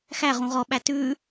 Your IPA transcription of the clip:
x æ ʁ ũ ʁ ɔ ɓ æ t ʉ

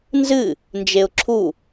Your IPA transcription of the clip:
n z ɨ | n d͡ʒ e ʊ̯ ǁʰ u

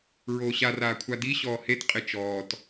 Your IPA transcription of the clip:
ɹ oː ɕ a r aː kʷʰ a d i ɕ ɔː h e t qʼ ɪ t͡ʃ ɔː t

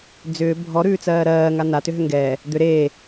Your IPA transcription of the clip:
d͡z ʏː bʱ ɔ ɾ ʉː t͡s ɜː ɾ ɜː ŋ a n a t ʏ ɦ ʏ ŋ ɡ ɛː | d̪ ʏ ɾ eː

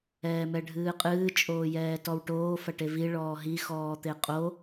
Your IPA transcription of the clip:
ɛː m ɛ ɖʱ ɨː qʼ ɨː t͡ʃʼ oː j ɛː t ɔ w ʈ oː f ɐ ʈ e v i ɭ ɔː ɦ i x ɔː t̪ e qʼ o

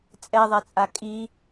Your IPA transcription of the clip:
t͡sʼ ɛ ðˤ ɛ t͡sʼ a kʼ i

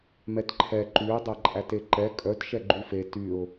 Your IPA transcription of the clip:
m ɛ t ǃʰ ɛ ǃ y ə̯ dˤ æ ǃʼ æ t e ǃ ɛ kʼ œ t ʃ ɛ ɡ͡ǃ y f e t y ʊ̯

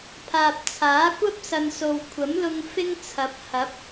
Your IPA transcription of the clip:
pʰ aː˨ p̚ t͡sʰ aː˨˥ kʷ ɐ˥ p̚ s ɐ˨ n s o˨ w kʷʰ ɐ˨˥ m l ʊ˧ ŋ f ɪ˥ ŋ t͡sʰ ɐ˨˥ p̚ h ɐ˨˥ p̚

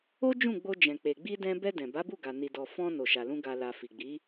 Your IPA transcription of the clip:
o˦ d͡ʒ ũ˦˨ ɡ͡b o˧ d͡ʒ ɛ̃˨ k͡p e˨ ɡ͡b i˧ d ɛ̃˧ b ɛ˧ d ɛ̃˨ b a˨˦ b u˦˨ ɡ a˨ n i˨ d ɔ˨ f ɔ̃˧ n o˨ ʃ a˨ l ũ˧ ɡ a˨ l a˨ f i˨ ɡ͡b i˨˦

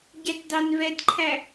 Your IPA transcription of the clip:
ɟ æ t d ɑ n v ɛ d ǃʰ æ

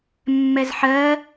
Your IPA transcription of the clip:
mː ɛ z ħ ɜ

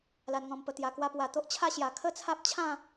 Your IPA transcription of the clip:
l a˨˩ n ŋ ɔ̃˨˩ m p ə˨˩ t̪ j a˨˩ k w a˧ p w a˨˩ t̪ o˦ ʔ t͡ɕʰ a˥˧ ɕ j a˨˩ kʰ ə˦ t͡sʰ a˦ p̚ t͡ɕʰ ã˥˧

